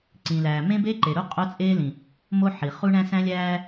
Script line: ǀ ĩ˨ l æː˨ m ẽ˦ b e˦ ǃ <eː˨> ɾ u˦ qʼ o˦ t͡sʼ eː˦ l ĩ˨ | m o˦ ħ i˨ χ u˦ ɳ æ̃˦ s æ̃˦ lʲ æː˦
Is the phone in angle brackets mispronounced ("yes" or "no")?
yes